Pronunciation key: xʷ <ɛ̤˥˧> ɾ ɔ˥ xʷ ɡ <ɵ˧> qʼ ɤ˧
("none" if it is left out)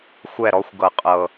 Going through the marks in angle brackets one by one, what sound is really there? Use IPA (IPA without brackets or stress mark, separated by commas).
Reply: ɛ˥˧, ɤ˧